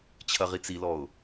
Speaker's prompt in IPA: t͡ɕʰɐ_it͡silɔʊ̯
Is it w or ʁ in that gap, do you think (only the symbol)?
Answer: ʁ